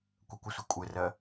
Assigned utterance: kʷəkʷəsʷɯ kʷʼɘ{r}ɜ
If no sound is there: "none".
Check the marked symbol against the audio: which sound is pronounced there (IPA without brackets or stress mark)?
r